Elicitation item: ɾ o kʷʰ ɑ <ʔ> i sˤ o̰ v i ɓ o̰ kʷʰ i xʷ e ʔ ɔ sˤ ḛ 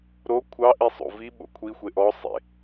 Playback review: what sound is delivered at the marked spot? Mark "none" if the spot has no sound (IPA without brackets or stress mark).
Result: ʔ